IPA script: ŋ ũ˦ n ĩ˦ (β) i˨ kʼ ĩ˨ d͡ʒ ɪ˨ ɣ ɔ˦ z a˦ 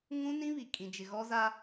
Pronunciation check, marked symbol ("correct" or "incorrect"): correct